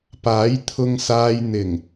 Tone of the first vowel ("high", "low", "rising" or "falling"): rising